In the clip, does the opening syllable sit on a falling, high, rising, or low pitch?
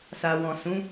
low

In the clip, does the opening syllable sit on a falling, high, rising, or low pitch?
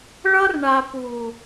high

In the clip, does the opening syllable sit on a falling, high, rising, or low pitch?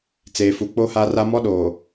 low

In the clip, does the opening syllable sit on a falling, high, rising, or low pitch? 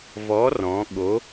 rising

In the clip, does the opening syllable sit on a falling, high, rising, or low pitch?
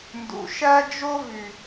low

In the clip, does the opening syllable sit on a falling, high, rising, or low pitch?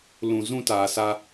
low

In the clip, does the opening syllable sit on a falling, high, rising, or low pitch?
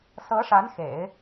rising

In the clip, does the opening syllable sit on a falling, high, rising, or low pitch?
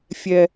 high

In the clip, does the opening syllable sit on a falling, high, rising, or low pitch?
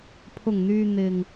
low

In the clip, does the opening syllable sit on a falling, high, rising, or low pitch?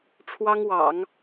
high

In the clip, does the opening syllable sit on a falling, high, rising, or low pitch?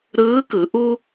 rising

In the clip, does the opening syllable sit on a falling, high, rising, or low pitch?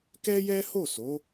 high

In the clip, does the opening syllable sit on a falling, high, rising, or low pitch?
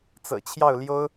low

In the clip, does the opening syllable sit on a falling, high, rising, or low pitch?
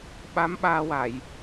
rising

